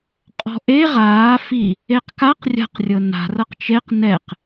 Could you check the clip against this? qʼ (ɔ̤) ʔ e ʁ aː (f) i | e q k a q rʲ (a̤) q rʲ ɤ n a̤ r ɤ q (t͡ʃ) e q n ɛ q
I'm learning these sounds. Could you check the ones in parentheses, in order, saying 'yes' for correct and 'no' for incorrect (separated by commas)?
yes, yes, yes, yes